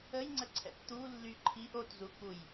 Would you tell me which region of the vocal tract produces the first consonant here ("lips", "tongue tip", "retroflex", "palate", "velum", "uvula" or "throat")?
palate